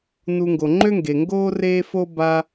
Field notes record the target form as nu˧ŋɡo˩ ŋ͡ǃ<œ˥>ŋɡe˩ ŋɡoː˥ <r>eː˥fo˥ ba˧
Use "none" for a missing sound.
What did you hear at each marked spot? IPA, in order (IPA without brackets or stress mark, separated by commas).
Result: ø˥, r